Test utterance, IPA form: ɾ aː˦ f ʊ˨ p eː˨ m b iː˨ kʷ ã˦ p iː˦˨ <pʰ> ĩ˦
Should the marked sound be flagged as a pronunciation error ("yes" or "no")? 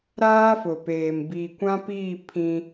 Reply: no